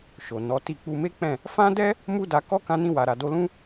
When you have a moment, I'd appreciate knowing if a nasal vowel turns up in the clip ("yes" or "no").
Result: yes